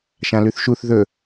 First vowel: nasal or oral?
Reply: nasal